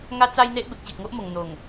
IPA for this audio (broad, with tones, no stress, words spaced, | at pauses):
ŋa˦t͡sa˦jn̪e˦ʔ be˨k̚ɕe˨k̚ŋo˦ʔmo˨˩ŋ n̪o˨˩ŋ